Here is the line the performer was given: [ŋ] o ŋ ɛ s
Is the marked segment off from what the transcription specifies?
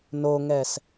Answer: yes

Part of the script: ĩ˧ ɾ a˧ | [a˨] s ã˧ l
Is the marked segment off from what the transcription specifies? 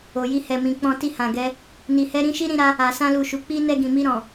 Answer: no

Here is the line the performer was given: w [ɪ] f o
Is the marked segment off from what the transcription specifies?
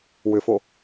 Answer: yes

